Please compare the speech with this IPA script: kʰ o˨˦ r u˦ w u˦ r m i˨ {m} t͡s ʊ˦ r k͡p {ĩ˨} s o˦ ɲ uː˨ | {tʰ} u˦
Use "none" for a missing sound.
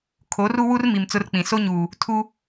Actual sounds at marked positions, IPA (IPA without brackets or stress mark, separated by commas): m, ĩ˨, tʰ